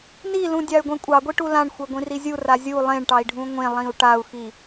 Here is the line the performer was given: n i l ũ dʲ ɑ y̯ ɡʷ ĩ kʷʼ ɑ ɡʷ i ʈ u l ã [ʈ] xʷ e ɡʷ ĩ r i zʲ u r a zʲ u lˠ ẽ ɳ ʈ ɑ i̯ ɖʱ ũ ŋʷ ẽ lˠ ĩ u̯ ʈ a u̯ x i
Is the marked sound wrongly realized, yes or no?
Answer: yes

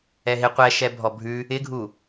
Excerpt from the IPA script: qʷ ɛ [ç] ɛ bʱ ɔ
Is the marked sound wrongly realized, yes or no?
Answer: yes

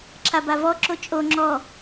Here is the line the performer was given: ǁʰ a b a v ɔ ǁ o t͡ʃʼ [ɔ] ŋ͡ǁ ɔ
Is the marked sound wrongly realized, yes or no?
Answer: yes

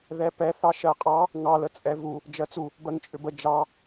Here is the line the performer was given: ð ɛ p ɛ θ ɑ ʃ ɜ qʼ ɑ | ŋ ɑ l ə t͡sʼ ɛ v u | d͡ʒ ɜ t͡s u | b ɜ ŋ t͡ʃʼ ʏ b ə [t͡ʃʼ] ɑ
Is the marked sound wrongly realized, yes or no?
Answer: yes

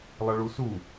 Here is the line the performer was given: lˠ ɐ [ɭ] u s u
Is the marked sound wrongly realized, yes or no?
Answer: no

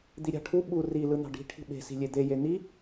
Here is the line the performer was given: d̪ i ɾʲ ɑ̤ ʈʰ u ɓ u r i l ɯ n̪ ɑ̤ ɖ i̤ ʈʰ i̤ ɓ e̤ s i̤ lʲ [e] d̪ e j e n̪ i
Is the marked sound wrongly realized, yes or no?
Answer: no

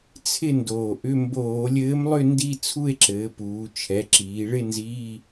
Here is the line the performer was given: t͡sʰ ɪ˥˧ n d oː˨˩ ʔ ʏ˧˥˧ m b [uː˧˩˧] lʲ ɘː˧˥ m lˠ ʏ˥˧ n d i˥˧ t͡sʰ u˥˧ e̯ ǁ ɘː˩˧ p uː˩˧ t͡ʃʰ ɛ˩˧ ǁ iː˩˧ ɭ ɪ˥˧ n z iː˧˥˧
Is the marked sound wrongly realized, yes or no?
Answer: yes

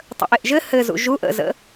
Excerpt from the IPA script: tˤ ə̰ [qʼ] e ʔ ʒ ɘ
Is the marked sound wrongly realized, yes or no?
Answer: yes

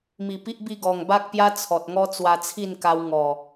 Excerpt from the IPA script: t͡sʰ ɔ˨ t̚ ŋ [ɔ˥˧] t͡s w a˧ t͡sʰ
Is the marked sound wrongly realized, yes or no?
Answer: yes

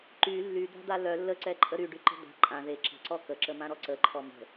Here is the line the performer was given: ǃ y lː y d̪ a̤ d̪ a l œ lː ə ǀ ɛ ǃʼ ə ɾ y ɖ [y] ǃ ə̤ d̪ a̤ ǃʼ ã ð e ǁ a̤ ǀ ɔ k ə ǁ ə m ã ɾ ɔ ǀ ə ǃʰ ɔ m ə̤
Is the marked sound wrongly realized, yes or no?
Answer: no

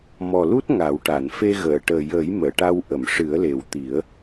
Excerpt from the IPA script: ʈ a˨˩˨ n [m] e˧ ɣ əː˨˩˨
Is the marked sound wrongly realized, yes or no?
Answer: yes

